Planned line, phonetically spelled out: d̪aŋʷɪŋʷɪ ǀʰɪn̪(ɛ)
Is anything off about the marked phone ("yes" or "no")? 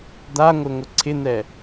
no